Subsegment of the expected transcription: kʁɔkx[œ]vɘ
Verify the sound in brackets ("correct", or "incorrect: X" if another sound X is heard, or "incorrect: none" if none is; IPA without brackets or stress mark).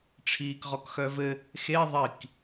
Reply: correct